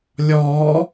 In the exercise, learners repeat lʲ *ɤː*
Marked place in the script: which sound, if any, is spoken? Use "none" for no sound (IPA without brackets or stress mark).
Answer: ɔː